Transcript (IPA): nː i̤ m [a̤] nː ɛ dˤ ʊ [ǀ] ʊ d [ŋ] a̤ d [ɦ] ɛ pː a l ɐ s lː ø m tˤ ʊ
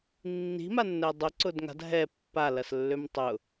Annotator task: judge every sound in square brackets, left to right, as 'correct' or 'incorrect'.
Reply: incorrect: a, correct, correct, correct

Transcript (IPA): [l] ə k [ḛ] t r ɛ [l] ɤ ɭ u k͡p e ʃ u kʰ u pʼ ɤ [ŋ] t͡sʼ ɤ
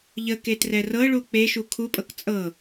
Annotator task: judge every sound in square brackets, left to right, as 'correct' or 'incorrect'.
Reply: incorrect: ʎ, incorrect: e, incorrect: r, incorrect: k

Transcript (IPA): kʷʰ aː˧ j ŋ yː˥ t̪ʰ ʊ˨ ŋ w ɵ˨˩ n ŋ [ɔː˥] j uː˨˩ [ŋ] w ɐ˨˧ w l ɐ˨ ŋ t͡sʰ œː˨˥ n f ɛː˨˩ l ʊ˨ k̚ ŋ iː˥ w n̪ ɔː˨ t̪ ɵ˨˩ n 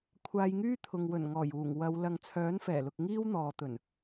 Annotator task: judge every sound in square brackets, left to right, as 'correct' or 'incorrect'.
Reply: incorrect: ɔː˨˩, correct

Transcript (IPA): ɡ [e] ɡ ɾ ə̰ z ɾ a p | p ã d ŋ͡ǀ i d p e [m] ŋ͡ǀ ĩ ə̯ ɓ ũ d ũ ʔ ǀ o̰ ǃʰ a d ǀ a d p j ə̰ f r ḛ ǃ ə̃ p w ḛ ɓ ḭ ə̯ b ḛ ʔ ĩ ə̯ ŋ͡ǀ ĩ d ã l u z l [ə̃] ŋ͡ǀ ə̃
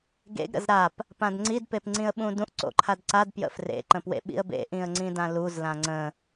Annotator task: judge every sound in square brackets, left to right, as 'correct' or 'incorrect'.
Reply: incorrect: ḛ, incorrect: p, incorrect: ã

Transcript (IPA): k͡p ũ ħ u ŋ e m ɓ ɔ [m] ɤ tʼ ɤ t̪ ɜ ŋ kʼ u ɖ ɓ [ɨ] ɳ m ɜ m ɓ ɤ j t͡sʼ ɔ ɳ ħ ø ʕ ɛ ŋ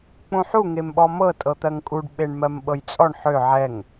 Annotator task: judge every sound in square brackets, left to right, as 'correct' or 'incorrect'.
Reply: correct, incorrect: e

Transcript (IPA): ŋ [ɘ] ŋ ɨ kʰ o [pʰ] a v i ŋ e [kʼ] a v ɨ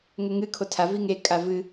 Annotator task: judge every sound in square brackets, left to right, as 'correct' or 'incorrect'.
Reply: correct, incorrect: tʰ, correct

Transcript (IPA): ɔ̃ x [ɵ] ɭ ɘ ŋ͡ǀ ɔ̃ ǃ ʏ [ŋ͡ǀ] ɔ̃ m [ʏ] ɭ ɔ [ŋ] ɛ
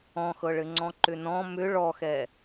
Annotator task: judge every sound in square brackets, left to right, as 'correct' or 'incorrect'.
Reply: incorrect: ɤ, incorrect: n, correct, incorrect: x

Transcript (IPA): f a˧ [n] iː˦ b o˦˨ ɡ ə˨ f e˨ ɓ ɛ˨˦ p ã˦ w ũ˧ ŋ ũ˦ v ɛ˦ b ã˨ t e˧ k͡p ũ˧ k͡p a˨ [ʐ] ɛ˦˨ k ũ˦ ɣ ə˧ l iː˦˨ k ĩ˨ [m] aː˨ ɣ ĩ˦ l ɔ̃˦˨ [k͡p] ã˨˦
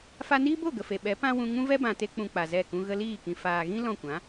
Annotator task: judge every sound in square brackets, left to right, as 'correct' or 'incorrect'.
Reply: correct, incorrect: z, incorrect: f, incorrect: kʷ

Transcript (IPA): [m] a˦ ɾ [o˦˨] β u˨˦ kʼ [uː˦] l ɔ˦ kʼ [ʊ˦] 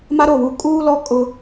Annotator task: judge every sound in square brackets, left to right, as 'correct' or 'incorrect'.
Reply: correct, correct, correct, correct

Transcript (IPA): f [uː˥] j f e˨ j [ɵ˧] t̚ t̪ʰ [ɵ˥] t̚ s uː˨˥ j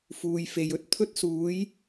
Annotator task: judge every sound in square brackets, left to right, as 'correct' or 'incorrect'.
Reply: incorrect: uː˨, incorrect: ɵ˥, correct

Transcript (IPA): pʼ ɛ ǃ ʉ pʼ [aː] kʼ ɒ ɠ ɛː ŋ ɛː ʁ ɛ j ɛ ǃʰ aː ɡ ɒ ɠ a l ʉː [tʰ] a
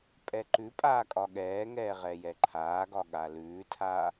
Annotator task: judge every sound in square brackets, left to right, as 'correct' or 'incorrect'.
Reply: correct, correct

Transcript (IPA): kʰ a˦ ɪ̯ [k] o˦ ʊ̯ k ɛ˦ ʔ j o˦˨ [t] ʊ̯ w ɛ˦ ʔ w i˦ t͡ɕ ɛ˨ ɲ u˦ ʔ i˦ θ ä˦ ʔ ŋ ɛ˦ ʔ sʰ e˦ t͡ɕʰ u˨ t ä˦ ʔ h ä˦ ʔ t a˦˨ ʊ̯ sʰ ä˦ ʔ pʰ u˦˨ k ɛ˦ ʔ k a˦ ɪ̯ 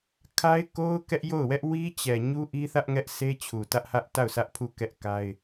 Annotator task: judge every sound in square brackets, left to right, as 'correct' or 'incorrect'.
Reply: correct, incorrect: none

